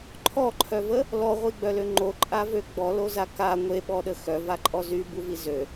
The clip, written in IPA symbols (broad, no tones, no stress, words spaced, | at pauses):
ǃʰɔǃʰœvə | lɔʁʷiɡ͡bœlø ŋ͡ǃoǃʼavø ɡ͡bɔloza ka ŋʷeɓɔɗə xœvaǃʼɔ zybuvi zø